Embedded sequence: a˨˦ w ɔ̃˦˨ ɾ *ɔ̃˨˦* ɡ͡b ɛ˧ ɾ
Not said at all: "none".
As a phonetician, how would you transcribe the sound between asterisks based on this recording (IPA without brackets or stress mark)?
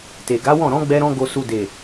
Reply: ɔ̃˨˦